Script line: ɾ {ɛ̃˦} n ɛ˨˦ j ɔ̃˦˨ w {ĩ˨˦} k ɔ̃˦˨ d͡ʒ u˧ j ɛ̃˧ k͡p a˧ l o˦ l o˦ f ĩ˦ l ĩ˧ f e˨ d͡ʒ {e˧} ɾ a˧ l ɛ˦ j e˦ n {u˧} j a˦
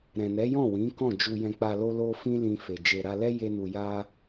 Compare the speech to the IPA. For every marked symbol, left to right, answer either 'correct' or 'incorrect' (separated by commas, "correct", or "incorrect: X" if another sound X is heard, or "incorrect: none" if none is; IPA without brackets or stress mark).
incorrect: ɛ̃˨, correct, incorrect: e˨, correct